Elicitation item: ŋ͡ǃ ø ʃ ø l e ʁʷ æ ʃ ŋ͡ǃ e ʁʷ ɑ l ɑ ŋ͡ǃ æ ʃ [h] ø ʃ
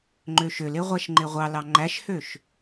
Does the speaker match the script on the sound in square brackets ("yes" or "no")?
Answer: yes